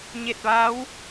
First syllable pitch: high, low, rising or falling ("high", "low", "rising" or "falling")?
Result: falling